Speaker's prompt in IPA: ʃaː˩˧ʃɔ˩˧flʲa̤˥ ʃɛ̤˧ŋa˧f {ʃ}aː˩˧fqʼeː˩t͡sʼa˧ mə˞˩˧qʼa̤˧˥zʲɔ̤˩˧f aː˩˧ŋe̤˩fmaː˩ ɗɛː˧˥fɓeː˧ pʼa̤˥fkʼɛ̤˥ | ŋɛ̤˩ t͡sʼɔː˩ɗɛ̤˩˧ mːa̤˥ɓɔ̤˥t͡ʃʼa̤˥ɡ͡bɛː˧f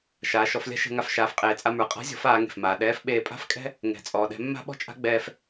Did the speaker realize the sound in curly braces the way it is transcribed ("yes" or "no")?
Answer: yes